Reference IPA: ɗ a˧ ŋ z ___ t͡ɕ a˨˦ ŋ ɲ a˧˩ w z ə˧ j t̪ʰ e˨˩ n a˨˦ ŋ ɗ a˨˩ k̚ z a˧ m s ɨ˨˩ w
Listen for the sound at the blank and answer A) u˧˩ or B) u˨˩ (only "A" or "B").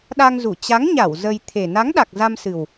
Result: A